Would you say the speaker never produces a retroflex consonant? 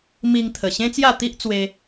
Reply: yes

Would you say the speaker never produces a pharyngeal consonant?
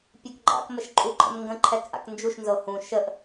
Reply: yes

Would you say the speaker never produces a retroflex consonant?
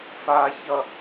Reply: yes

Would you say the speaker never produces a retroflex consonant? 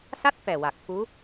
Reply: yes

